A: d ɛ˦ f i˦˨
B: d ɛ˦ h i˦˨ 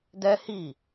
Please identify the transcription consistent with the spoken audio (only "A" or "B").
B